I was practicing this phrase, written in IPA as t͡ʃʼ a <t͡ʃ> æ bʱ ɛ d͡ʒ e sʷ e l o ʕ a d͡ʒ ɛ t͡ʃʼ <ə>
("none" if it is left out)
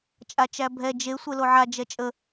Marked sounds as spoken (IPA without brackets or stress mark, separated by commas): t͡ʃ, ə